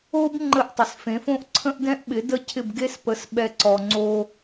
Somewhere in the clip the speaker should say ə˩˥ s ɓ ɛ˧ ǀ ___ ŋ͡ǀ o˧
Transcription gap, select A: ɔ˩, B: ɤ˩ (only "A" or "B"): A